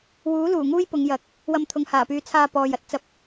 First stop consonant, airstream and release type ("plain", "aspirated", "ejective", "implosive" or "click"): plain